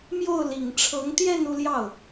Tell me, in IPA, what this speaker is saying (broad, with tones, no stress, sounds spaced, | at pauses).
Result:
m j o˥˩ ʊ̯ l i˨˩ ŋ ʈ͡ʂʰ ɤ˧˥ ŋ t̪ j ɛ˥˧ n u˥˧ l j ɑ˥˩ ʊ̯